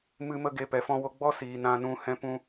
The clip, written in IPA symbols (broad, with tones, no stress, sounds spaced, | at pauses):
m ɨ˧ m ə˧ ɡ e˧ p ɛ˨ f ɔ̃˧ w o˧ ɡ͡b ɔ˦ s iː˨ n ã˧ n ũ˧ h ɛ̃˧ p ũ˧